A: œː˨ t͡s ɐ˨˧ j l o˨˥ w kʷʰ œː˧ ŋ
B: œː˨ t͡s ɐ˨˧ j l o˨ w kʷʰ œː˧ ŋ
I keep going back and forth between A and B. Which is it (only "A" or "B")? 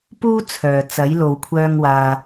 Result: B